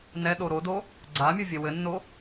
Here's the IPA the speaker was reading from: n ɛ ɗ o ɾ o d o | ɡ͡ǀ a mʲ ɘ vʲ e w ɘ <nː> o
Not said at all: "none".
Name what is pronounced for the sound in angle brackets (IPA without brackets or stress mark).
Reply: nː